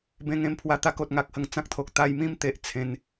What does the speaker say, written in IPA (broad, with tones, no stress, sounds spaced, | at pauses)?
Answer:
b ẽ˧ ŋ ẽ˧ m pʰ w a˧ t̪ a˦ k o˨ t̚ ŋ a˦ k̚ h ə˨˩ ŋ t͡s ã˦ k̚ t̪ʰ o˨ k̚ t̪ a˧ j m ĩ˥˧ m t̪ e˨ ʔ t͡sʰ ẽ˨˦ n